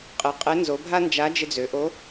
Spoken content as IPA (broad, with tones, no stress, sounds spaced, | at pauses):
qʼ ɪ˩˧ qʼ e˧˥ n z o˩˧ bʱ a˥ n d͡ʒ a˧˥ d͡ʒ ɪ˧ d͡z ø˩˧ ʔ o˧˥